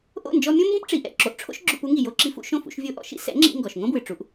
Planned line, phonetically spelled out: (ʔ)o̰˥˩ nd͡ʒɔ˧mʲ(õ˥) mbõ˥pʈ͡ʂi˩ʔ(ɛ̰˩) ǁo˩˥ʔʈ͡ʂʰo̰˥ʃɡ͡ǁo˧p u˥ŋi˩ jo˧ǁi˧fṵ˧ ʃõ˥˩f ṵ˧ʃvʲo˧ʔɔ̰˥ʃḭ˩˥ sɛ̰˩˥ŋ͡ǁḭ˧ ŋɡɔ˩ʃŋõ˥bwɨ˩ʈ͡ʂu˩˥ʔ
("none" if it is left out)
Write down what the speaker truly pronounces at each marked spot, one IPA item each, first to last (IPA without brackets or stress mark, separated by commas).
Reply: ʔ, õ˥, ɛ̰˥˩